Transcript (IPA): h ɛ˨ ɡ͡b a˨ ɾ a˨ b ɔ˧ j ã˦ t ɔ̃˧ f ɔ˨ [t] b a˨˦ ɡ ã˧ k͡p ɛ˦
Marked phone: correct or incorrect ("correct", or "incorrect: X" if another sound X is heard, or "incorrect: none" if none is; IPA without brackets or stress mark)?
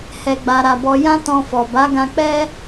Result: incorrect: none